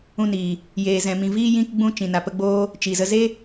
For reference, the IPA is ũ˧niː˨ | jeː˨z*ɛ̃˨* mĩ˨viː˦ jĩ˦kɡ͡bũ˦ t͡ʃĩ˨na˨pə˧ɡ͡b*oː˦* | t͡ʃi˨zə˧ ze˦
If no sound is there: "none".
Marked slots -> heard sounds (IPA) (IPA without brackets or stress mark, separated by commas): ɛ̃˨, oː˦